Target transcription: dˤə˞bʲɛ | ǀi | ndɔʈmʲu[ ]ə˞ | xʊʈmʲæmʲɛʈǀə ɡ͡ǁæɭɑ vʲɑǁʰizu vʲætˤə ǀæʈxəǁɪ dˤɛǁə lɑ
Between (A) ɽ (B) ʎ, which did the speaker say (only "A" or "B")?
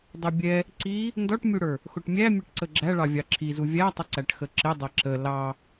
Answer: A